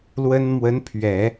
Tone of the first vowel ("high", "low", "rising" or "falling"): high